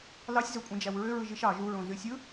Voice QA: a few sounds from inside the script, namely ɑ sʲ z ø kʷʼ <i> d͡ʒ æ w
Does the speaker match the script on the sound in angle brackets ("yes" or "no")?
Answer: no